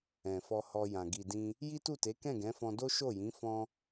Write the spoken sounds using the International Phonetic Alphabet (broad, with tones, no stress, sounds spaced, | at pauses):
ɛ̃˨ f ɔ˧ h ɔ˧ j ã˨ ɡ i˨ d ĩ˧ | j i˦ t u˦˨ t e˨˦ k ɛ̃˦˨ ɡ ɛ̃˨˦ f ɔ̃˧ d o˦ ʃ o˦˨ j ĩ˨˦ f ɔ̃˦